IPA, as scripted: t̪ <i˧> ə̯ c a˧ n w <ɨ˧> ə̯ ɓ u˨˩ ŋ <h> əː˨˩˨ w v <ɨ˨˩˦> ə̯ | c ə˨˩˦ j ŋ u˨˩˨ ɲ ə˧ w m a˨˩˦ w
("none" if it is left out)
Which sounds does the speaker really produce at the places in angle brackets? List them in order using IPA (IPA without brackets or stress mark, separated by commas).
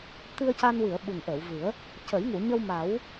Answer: ɨ˧, ɨ˨˩˨, ʔ, ɨ˨˩˦